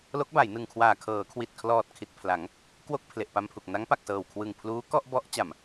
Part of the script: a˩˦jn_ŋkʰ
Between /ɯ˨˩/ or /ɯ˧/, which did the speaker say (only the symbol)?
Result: ɯ˨˩